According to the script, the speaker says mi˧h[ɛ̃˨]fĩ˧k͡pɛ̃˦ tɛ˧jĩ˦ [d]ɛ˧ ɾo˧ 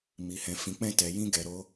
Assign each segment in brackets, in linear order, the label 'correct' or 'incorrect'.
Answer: incorrect, incorrect

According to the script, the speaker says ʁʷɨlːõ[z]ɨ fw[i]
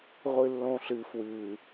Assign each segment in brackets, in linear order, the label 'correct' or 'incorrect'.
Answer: incorrect, incorrect

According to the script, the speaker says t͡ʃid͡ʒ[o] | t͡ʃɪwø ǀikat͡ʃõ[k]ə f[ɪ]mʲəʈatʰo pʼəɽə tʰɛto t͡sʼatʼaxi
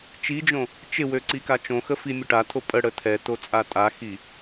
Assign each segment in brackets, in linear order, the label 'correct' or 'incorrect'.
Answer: incorrect, incorrect, incorrect

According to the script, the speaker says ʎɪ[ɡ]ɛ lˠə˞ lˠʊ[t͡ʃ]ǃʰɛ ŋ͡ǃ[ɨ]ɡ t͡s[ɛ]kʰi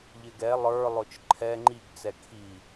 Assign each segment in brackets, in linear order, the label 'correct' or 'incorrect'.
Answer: correct, correct, incorrect, correct

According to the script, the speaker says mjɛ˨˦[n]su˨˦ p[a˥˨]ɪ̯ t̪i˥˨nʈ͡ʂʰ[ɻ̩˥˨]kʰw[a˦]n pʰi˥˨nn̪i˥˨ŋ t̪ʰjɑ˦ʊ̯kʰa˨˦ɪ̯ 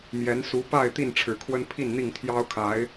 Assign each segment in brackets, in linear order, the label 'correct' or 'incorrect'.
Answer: correct, correct, incorrect, incorrect

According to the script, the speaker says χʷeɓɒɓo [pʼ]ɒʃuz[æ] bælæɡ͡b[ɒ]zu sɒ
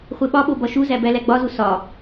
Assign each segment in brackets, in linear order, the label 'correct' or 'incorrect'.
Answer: incorrect, correct, correct

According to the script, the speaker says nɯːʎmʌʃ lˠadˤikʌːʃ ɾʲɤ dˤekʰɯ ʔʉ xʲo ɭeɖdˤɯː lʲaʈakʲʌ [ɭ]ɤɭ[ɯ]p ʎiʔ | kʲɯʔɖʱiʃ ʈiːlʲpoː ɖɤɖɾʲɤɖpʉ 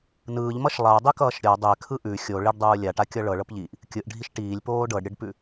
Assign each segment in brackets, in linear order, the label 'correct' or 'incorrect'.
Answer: correct, incorrect

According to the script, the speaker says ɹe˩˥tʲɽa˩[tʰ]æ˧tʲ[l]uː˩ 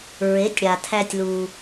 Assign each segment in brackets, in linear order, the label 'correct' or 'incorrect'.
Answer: correct, correct

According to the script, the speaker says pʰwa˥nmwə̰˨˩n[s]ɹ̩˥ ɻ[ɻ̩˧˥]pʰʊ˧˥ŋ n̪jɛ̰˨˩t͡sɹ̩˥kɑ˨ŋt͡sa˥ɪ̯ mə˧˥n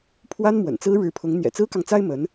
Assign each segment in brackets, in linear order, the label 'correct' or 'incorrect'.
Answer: incorrect, correct

